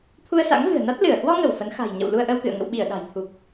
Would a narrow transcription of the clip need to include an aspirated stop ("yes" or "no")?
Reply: yes